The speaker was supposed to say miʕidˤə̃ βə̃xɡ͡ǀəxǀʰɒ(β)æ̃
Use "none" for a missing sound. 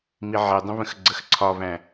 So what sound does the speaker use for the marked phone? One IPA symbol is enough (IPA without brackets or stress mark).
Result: β